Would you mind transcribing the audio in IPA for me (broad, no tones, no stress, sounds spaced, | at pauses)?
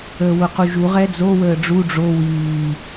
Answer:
əː w ʊ q u ʒ u ʁ ɛ d͡z o w əː ɖ͡ʐ u ɖ͡ʐ o w iː